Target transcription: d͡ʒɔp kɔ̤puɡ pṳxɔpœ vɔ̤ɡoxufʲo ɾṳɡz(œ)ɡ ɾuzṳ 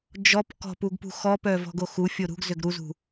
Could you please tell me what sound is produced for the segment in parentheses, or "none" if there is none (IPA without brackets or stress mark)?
ø